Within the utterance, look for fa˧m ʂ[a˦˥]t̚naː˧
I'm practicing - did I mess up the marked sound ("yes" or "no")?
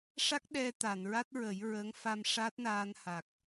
no